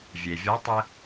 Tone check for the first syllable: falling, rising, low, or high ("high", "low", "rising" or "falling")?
low